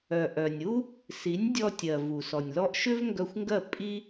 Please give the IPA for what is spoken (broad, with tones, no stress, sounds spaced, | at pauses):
œ˩ ʔ œ˩ nʲ u˥ | s i˩˥ nʲ dʲ ɔ˧ tʲ ɜ˩ v u˩ s ɔ˩ nʲ l ɔ˧ ʔ ʃ ʏ˥ v ŋ ɡ œ˧ xʷ ŋ ɡ ɜ˥˩ pʼ i˥